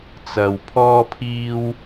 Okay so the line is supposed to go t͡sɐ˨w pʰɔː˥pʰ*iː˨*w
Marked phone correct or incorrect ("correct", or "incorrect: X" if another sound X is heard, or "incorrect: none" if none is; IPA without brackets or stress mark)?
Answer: incorrect: iː˥